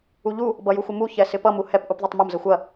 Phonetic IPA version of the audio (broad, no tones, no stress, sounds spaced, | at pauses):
u ʎ u | b ʌ j u xʷ ɪ m u ç ɛ s ɪ p ʌ m u h ɛ p ʔ u p ðˤ œ tˤ m ə m z ə xʷ ɐ